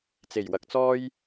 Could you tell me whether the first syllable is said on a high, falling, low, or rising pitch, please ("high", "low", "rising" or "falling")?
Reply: low